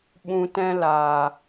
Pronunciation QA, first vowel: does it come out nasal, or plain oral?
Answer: nasal